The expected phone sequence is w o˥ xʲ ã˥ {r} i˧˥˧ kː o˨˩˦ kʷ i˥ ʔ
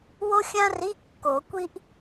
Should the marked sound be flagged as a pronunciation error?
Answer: no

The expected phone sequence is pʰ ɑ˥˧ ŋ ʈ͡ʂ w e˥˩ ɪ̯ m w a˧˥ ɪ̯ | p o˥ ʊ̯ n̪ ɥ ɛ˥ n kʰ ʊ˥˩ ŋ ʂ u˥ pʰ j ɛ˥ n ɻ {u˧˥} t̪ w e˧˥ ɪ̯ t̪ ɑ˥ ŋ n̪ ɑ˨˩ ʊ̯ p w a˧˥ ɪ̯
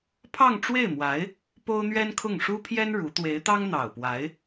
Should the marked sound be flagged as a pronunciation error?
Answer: no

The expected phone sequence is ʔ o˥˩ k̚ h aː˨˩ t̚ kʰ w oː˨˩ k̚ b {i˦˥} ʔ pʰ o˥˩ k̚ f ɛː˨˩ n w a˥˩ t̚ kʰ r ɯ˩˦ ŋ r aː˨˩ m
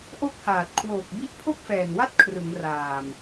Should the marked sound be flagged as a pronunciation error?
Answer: no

